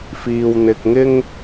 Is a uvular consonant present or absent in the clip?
absent